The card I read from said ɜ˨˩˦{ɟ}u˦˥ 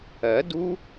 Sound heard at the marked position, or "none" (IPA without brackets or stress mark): d